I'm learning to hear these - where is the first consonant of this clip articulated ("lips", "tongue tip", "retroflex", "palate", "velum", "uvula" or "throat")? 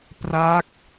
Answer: lips